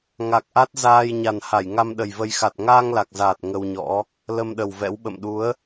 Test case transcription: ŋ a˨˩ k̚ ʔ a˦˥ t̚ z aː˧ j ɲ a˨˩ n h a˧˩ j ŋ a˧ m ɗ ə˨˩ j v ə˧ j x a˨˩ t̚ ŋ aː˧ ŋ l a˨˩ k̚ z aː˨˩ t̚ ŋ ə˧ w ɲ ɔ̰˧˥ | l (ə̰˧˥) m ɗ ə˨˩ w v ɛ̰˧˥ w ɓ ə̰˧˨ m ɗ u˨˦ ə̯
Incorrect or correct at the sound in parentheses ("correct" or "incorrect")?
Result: incorrect